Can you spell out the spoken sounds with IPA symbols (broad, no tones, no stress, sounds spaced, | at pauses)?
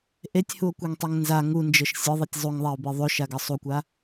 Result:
ʔ e tʲ h u o̯ kʷ ɛ ŋ tˤ ɛ ŋ n z a ŋ u n d͡ʒ ɤ ʃ sʲ ɤ ðˤ ɤ tʲ zˤ u ŋ ðˤ a o̯ b e ðˤ o ʃ a ɡ ɤ sˤ u kʷ a